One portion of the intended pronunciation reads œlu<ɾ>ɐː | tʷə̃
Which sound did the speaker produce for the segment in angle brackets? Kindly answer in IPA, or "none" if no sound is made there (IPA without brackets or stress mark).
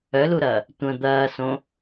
ɾ